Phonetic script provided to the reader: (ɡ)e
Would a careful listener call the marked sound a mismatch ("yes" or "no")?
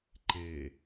yes